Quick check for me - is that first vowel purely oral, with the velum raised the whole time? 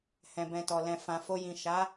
no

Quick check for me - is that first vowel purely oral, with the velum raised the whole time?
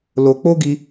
yes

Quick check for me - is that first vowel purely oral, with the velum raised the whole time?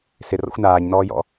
yes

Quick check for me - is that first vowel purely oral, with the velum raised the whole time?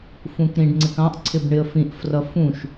no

